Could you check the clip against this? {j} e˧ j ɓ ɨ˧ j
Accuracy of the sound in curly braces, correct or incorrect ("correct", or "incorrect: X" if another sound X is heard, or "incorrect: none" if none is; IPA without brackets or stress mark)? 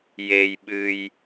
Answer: correct